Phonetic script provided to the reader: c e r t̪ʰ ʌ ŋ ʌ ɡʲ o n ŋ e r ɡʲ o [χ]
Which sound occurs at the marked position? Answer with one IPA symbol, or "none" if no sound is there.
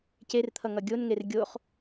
χ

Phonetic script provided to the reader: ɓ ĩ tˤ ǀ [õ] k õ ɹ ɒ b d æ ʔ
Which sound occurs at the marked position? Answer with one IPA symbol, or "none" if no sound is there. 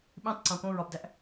õ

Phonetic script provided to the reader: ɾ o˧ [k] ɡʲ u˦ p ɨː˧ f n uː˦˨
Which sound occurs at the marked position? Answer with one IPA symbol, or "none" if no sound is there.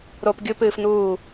p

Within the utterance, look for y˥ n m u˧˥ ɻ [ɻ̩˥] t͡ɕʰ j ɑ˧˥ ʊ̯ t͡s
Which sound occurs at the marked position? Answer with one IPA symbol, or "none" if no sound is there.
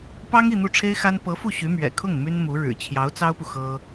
ɻ̩˨˩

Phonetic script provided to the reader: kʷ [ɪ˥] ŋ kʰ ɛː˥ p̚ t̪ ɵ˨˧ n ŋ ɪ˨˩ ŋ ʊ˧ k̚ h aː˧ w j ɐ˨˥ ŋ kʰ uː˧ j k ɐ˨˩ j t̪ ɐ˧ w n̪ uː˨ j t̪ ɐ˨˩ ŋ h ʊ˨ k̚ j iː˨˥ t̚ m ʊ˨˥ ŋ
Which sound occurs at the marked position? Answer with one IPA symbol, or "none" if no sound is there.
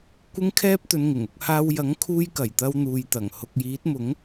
ɪ˥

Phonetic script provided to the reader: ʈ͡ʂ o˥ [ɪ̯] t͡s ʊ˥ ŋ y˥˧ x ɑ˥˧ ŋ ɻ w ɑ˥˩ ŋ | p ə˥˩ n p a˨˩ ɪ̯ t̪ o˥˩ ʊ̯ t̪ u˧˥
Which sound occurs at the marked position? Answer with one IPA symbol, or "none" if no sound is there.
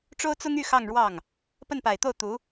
ʊ̯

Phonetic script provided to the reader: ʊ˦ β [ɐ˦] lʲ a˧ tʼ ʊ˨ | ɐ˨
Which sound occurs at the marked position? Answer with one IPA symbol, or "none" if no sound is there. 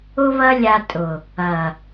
ɐ˦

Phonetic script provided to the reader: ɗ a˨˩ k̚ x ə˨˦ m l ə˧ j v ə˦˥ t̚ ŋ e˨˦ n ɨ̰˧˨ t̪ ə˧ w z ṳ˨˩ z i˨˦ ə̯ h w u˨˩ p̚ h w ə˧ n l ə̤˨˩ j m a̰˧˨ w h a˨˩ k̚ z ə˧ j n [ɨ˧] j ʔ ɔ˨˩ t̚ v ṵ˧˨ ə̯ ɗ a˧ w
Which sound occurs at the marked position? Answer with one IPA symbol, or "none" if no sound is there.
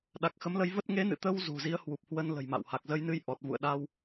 ɨ˧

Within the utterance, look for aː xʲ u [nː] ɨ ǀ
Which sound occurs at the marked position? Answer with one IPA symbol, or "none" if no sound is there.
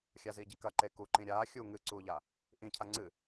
ŋ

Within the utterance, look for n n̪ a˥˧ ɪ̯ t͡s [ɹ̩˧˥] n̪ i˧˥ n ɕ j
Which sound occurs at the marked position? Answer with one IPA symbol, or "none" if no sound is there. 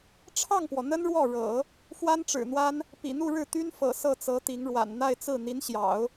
ɹ̩˥˩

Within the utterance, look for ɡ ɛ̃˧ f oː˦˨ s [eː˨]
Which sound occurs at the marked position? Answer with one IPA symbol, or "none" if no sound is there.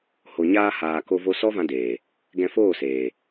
eː˨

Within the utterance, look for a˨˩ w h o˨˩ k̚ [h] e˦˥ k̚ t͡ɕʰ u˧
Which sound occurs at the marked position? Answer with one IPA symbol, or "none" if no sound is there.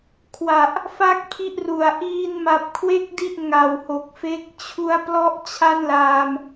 f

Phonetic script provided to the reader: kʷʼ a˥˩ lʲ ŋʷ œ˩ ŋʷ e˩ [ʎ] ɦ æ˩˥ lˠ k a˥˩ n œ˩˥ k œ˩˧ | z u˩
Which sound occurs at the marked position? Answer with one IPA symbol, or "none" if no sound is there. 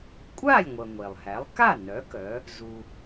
lˠ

